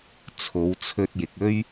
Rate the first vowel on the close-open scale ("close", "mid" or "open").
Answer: mid